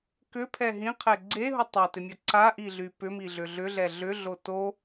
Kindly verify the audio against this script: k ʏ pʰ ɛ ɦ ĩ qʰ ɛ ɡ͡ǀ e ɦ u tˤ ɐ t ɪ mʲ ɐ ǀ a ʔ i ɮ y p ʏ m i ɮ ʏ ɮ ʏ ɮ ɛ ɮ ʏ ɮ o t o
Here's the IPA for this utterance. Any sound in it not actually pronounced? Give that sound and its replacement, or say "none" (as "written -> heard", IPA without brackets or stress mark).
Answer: none